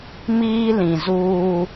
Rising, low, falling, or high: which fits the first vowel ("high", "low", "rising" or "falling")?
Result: high